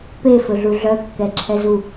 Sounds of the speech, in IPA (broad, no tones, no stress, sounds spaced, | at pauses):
p e f ɵ ɮ u ɮ œ kː ɛ ǁʰ ɛ z u